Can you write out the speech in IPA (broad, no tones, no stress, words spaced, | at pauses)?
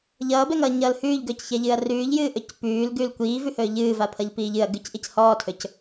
ʎʌːbɛŋʌːɲʌːl hʉːʎɡɵːcçɛʎɨːɐ̯ rʉːʎjɨːʔɵc pʉːlɡʉːl kʷiːvʉhɵː ʎɨːvapʰʌʎpiːʎ ɨɐ̯ ɡʉcʔic hɔːtʰɵc